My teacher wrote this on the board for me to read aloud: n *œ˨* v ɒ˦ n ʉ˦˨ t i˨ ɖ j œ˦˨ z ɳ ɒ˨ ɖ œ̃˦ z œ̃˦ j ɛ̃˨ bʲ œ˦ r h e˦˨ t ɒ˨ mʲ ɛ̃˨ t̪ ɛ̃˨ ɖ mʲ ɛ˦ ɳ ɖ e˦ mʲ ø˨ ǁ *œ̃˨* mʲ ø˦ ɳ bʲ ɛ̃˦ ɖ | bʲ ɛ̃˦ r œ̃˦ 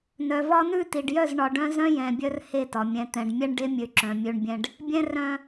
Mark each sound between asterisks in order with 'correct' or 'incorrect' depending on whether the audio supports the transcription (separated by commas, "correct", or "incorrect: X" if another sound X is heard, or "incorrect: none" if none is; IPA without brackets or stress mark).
correct, correct